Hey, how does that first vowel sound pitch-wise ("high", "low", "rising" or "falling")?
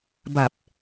low